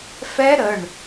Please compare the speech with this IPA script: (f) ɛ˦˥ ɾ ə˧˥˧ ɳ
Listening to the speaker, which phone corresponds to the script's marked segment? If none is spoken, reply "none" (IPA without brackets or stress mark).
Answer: f